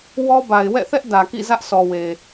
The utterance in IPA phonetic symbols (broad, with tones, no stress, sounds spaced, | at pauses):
w ɔ˦ b a˨ ɪ̯ w ɛ̰˦˨ θ ɛ˦ ʔ d ä˨ k ḭ˦˨ z ä˦ ʔ s ɔ˨ w e˨